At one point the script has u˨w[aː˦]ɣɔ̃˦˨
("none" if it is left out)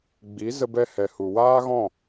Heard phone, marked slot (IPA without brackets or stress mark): aː˦